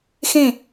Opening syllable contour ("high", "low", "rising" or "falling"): falling